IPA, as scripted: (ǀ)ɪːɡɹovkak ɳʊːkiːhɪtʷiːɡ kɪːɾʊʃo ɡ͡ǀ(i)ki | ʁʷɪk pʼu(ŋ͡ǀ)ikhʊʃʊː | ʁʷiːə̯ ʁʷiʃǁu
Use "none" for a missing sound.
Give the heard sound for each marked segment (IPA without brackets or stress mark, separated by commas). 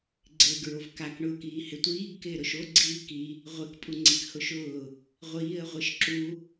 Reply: ɡ͡ǀ, iː, ŋ͡ǀ